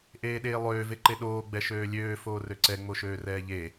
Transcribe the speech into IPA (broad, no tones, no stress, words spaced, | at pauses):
ʔeːɗeːlˠøː veǃeɗoː ɡ͡bɛʃøːlʲøː foːrøǀɛ ŋ͡moʃøːrɛːʎe